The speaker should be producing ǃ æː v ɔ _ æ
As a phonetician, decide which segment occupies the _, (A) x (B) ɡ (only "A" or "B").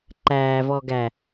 B